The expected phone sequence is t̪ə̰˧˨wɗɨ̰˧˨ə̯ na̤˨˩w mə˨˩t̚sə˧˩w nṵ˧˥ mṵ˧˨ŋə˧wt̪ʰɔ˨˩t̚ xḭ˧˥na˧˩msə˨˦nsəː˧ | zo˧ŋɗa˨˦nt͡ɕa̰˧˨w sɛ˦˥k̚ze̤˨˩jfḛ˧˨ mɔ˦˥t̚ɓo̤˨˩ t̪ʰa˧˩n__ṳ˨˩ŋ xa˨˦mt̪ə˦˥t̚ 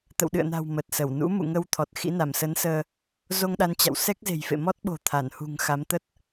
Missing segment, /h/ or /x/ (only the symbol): h